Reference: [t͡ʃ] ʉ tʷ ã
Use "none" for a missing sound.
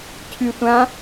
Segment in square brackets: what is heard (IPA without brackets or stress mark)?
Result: cʰ